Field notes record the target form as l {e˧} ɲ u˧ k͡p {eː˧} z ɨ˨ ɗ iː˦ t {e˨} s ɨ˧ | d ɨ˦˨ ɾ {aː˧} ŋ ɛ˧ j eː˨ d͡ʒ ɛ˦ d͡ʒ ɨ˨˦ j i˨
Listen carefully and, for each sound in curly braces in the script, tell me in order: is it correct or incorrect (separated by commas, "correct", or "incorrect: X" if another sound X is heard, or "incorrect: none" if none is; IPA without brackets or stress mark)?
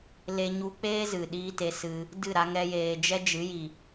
correct, incorrect: eː˦, incorrect: e˧, incorrect: a˧